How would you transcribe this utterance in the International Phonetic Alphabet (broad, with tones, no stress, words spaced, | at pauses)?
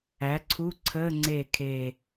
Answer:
æ˩˥ǀʰu˧˥˧ǀʰəː˧˥˧ ŋ͡ǀe˧˩ kʰe˧˩